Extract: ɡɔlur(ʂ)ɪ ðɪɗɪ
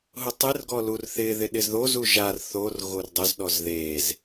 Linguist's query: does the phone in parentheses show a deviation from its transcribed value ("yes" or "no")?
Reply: yes